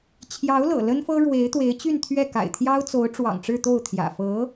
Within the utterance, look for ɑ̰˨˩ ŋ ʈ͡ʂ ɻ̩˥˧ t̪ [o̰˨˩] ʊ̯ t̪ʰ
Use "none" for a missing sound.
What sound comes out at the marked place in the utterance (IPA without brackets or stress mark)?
o˥˩